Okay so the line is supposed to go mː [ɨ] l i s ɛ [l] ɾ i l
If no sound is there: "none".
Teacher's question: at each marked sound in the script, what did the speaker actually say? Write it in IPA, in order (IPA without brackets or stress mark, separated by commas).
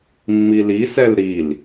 i, l